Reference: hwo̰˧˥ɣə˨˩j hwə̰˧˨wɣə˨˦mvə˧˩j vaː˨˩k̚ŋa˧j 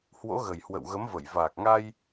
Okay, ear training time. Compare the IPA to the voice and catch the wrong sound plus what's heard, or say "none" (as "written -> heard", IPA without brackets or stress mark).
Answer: none